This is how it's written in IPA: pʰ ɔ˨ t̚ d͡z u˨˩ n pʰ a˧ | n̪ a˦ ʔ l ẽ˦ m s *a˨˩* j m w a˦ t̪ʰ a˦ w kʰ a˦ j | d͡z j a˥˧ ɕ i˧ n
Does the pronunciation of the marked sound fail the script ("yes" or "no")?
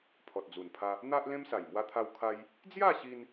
no